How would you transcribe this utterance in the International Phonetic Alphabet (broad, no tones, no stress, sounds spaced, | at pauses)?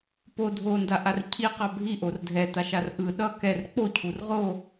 p o dʱ o n d a ʔ a r cʰ i q a bʱ i ʔ o r dʱ ɛ t̪ a ʃ a r ʔ ɯ ɗ ʌ k ɛ r k͡p o cʰ u r ʁ o